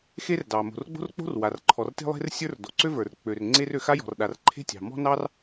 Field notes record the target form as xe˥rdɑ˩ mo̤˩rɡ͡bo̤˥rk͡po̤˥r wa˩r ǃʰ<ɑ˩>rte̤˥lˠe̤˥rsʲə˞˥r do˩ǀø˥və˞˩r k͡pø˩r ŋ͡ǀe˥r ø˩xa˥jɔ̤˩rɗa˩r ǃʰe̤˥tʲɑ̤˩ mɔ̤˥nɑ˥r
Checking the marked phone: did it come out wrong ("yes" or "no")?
yes